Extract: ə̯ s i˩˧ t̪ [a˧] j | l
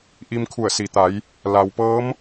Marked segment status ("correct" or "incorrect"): incorrect